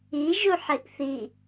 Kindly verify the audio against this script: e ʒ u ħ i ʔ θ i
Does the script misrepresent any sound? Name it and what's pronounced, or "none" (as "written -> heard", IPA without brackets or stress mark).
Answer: e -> i